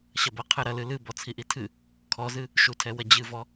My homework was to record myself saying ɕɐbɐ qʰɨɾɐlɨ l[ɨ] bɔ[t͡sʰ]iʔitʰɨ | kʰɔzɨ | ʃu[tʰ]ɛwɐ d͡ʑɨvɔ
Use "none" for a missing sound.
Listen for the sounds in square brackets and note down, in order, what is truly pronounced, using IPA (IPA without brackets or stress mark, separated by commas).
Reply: ɨ, t͡sʰ, tʰ